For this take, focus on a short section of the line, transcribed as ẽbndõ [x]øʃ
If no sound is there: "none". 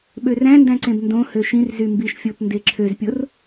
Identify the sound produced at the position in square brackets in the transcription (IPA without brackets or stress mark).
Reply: h